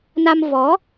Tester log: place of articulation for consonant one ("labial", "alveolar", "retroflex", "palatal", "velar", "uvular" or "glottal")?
alveolar